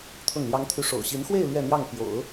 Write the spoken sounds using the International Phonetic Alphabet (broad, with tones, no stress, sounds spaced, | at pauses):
t̪ʰ ʊ˥˩ ŋ l j ɑ˥ ŋ t̪ʰ y˥ ʂ o̰˨˩ ʊ̯ ɕ i˧˥ n x w e˥˧ ɪ̯ l ɥ ɛ˥˧ n̪ j ɑ˥˩ ŋ p j o̰˨˩˦ ʊ̯